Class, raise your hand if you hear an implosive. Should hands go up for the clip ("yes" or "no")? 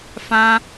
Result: no